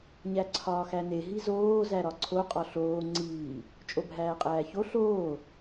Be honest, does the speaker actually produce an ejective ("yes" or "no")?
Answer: yes